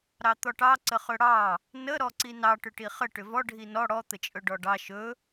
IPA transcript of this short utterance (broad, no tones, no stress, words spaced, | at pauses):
ɾɑt̪ɔʈɑ ǀəχɵɽɑ | nə ɾɔǀinɑ ʈʏʈiχə ʈʏvɔ ɖʱinɔ ɽɔ t̪ət͡ʃʼɵɖɔɖɑ ʃɵ